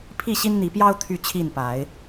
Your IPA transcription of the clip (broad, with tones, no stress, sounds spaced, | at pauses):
pʰ i˥˨ ɕ i˦ n n̪ i˨˦ p j ɑ˦ ʊ̯ t̪ʰ y˥˨ t͡ɕʰ i˥˨ n p a˨˦ ɪ̯